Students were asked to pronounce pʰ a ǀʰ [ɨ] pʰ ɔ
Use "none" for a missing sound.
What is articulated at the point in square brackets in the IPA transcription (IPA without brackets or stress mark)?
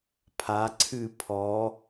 ɨ